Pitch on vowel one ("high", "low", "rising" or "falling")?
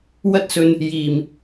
high